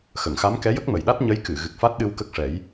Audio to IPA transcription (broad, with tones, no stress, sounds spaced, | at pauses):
x ə˨˩˨ ŋ x a˧˥ m k ɛ˧˥ j ə˦˥ k̚ m ə˨˩ j ɗ a˦˥ t̚ ɲ ə˧˥ j k ɨ˨˩˨ ɣ ɨ˨˩ k̚ f a˦˥ t̚ ɗ ɨ˧ w k ə˦˥ k̚ ʂ ɛ˨˩˦ j